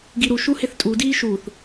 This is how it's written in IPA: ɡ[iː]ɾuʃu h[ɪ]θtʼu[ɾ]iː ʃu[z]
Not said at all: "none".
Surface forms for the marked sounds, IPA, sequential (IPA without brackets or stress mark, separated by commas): i, ɪ, d, θ